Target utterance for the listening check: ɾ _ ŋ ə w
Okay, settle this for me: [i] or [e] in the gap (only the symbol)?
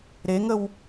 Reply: e